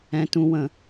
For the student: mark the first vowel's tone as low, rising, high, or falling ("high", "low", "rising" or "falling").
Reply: low